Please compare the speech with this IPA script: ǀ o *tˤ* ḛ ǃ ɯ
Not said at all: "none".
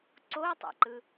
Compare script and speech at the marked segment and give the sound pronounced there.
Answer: tˤ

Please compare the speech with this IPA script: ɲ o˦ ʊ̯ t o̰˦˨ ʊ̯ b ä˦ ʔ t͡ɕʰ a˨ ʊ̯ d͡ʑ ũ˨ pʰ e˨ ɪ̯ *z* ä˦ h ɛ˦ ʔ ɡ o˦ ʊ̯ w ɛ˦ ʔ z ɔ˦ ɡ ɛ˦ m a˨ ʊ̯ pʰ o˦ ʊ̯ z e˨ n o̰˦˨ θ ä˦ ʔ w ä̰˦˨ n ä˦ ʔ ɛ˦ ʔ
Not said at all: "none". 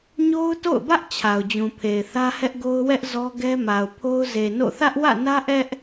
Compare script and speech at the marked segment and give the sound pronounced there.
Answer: θ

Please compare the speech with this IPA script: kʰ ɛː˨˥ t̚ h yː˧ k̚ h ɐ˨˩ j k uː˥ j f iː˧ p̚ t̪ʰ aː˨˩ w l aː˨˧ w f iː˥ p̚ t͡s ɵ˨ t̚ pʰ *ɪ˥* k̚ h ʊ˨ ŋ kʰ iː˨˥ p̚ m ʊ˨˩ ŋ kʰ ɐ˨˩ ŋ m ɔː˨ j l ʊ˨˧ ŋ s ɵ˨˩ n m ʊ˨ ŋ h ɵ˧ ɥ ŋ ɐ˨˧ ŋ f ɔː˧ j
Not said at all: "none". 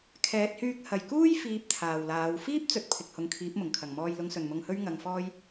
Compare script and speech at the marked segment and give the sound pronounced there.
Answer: ɪ˨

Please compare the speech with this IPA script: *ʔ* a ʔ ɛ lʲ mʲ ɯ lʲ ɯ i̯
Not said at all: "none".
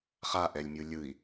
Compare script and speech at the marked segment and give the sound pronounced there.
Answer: χ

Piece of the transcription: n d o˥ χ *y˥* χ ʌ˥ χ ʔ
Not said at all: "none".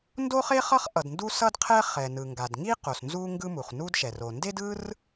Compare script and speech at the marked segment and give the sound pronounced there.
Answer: e˥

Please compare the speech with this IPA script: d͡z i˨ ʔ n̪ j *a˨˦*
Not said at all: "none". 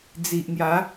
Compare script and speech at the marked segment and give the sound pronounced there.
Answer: a˨˦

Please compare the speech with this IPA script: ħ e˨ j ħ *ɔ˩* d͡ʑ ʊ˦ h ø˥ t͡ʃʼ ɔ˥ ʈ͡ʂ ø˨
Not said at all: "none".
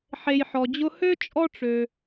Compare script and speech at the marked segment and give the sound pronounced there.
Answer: ɔ˩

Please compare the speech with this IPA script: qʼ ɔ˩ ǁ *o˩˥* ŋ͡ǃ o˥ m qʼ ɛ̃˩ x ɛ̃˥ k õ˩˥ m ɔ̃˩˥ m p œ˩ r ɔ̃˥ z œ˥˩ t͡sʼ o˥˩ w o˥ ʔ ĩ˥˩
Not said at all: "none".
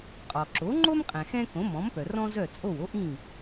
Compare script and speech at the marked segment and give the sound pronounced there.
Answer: o˩˥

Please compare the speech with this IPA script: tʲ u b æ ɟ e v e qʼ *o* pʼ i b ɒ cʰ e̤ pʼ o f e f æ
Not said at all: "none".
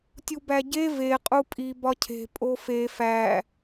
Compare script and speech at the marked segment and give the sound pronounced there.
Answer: u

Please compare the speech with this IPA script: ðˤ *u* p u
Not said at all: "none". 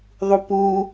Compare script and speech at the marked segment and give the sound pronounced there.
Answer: u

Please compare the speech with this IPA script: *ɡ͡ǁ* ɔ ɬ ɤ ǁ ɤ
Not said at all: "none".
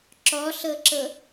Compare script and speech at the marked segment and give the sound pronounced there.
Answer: ǁ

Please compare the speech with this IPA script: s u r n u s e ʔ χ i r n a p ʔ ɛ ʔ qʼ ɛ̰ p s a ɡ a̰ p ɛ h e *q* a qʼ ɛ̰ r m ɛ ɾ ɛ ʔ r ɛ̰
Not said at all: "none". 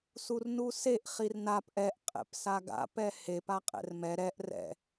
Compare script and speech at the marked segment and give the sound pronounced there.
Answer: p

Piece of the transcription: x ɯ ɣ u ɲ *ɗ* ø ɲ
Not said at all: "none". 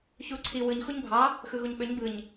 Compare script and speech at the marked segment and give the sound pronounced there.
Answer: ɓ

